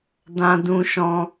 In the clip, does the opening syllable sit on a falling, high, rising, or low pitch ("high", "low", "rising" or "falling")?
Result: high